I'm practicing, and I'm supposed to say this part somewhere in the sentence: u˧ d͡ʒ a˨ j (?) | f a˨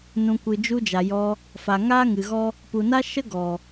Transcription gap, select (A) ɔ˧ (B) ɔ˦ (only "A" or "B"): A